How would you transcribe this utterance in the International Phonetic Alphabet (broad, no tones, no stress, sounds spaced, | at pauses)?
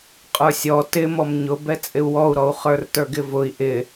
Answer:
qʼ ə˞ sʲ ɔ t ɪ m ɔ m ɲ ʊ b ɛ t͡sʼ ɪ u̯ w ɔ u̯ ɾ ɔ u̯ χ ə˞ r t ə˞ ɡ ɪ v ʊ i̯ ʔ ɪ